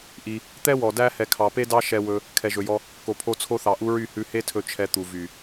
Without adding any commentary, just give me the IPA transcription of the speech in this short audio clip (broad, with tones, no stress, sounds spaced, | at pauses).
ʔ i˧ | t̪ ɛ˦ w ɔ˨ d æ˦ h ɛ˨ kʰ ɑ˨ p e˦ d ɑ˦ ʃ ɛ˧ w ɵ˧ | kʰ ɛ˨ ʒ ɵ˨ j ɔ˧ | k o˨ pʰ o˧ t͡sʰ o˧ θ ɑ˨ ʔ u˧ ɹ y˦˨ h ʉ˧ h e˦ tʰ ɵ˧ t͡ʃʰ ɛ˧ t̪ u˨ v y˨